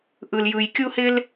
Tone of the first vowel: low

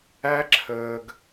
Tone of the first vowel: high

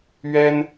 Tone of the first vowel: high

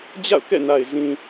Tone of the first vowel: falling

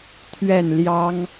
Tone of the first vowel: falling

